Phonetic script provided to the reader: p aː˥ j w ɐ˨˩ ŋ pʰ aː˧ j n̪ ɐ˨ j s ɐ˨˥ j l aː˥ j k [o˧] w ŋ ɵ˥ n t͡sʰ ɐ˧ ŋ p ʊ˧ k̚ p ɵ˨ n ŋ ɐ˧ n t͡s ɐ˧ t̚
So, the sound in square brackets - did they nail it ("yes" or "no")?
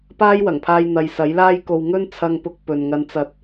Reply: yes